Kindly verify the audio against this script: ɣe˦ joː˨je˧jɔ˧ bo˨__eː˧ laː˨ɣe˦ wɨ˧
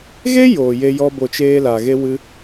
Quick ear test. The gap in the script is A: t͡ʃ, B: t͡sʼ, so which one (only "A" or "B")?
A